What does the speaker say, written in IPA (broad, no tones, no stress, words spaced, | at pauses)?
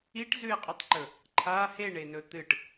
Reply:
iʈzʉe̯qʼɵtˤǃɵ | ǃʰa heɳenɵ t̪ɨʈ